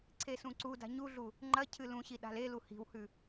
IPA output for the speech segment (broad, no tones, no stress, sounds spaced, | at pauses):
ǀʰ e s ũ ǀ u d a̤ ɲ u ɮ u | ŋ͡ǃ ɐ cʰ ɨ l ũ ɕ i ɗ a̤ l e l u h i̤ w h ʉ